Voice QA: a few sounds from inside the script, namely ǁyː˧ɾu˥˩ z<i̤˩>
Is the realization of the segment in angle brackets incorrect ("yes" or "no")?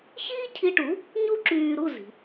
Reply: no